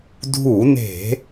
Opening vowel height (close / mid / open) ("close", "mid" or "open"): close